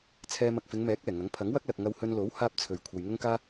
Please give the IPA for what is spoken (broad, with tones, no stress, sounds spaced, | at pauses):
t͡sʰ ɛː˧ m ɐ˨ k̚ f ɪ˨˧ ŋ m ɛː˨˥ k̚ ɛː˨˩ ŋ ɐ˨˥ ŋ pʰ ɐ˨˥ ŋ w ɐ˥ k̚ l ɐ˨ k̚ ŋ ɐ˧ w h ɵ˧ n l o˨˥ w h aː˥ p̚ t͡sʰ ɵ˨ ɥ kʷʰ ɐ˨ j ŋ ʊ˥ ŋ k aː˥